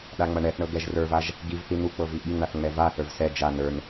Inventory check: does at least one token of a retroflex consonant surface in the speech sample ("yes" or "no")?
yes